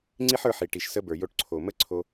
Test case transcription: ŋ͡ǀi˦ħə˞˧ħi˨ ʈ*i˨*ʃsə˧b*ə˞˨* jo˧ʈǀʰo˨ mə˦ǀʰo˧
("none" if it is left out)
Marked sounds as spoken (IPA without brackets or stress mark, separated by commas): i˨, ə˞˨